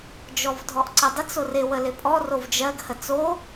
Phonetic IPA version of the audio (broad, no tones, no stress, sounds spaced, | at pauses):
d͡ʒ ɔ v dʱ ɔ ʔ ǀ ə dˤ ɪ t͡s o r ɪ w ə l ɪ pʼ ɔ r o v d͡ʒ ɜ ɡ h ə t͡s o